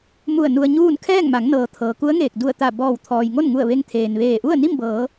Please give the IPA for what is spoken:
m u˧˩ ə̯ n u˧ ə̯ ɲ uː˥˨ n kʰ ɛː˥˨ ŋ m a˩˧ ŋ n ɤː˩ t̪ʰ ɤː˩ k u˧˥ ə̯ ŋ eː˧˩ k̚ d u˧˩ ə̯ t̪ a˧˩ b ɔː˧˩ w t̪ʰ ɔː˩ j ŋ o˥˨ n ŋ u˧˩ ə̯ ʋ e˧ ŋ t̪ʰ eː˩ n ʋ eː˧˩ ʔ u˥˨ ə̯ n i˥˨ m b ɤː˩˧

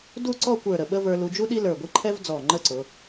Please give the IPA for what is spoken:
d u˥˧ ǀ ɔ˥˧ kʷ ə˞˧˩ ɾ ə˧˩ ɓ ə˥ v ə˞˧ l u˧ d͡ʒ u˥ ɗ i˥ l ə˞˧˩ ɡʷ i˥ ǃʰ ɛ˥ v d͡z ɔ˧˩ ŋ͡ǃ ə˥˧ ǀ ʊ˩˧

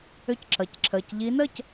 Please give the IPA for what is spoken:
ʏ˥˩ c ǁ ʌ˩˧˩ c ǁʰ əː˩˧˩ c ʎ i˨˦ n əː˥˩ c

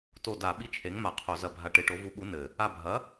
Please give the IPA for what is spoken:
t o˧˩ d a˧˩˧ ɓ i˧˥ t͡ʃʰ e˩˥ ŋ m a˧˩˧ qʰ o˧˩˧ z ɐ˧˩ bʱ a˧˩ ʈ e˧˩˧ ʈ o˩˥ v u˩˥ ɓ u˩˥ n ɘ˧˩ | a˧˩ bʱ ɐ˩˥

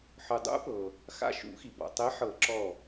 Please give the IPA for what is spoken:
ħ ɯ˩ dˤ ṵ˨˥ p ɤ˩ | x a̰˧˩ ʃ ṵ˨˩˦ x i˩ b ɔ̰˩ tˤ e˨˥ ħ ɤ˨˩˦ ǁ ɔ˧˩

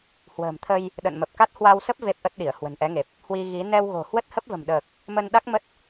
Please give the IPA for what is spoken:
h w ə̤ː˨˩ m t̪ʰ ə˧ j | ɗ ə̰˧˨ n m ə˨˩ p̚ k a˦˥ t̚ h w a˧ w s ə˦˥ p̚ v e˦˥ p̚ ʔ ə˦˥ t̚ ɗ i˧˩ ə̯ h w ə̤˨˩ n ʔ ɛ˨˦ ŋ e˨˩ p̚ | h w i˧ ɣ i˨˦ n ɛ˧ w ɣ o̤˨˩ h w ə˦˥ t̚ h ə˦˥ p̚ v ə̤˨˩ m ɗ əː˨˩ k̚ | m ə˧ n ɗ a˦˥ k̚ m ə˦˥ t̚

